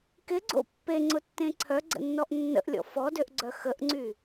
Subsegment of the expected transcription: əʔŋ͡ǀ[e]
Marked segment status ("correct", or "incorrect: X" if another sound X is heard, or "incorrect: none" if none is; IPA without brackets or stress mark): incorrect: y